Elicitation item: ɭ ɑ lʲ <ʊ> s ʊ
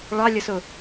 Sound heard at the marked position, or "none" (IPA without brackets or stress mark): ə